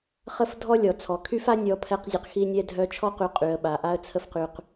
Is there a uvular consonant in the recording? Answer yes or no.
yes